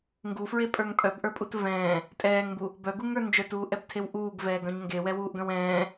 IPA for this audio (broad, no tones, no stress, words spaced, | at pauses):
ŋɡufɹepʼə˞ŋ pʼœbʔə˞pʼut vɛ̃ː | tʼɛːŋmbu | bœɡuŋə˞ nd͡ʒœtuːʔɛbtʰew ʔuːɡvɛːɡœ̃ɲ ŋɡewɛwuːʔɡœ̃w ɛ̃ː